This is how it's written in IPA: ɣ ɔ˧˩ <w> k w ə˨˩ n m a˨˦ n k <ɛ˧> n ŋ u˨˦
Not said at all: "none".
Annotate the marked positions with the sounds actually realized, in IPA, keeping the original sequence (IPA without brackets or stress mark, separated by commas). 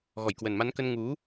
j, ə˧